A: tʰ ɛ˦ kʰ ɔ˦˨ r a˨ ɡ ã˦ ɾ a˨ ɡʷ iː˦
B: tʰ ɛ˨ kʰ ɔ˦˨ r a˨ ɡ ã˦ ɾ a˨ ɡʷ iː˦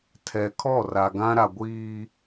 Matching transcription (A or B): B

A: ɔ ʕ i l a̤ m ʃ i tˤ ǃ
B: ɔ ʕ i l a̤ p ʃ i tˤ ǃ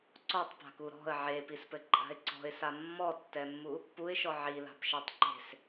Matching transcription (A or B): B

